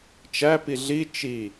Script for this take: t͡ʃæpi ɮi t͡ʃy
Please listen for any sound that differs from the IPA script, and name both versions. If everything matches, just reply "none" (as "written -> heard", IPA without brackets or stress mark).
y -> i